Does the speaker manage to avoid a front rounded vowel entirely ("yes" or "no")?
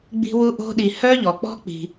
no